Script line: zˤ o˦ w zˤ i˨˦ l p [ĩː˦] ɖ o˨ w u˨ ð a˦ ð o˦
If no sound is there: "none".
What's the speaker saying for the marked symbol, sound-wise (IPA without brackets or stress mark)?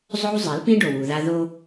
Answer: ĩ˦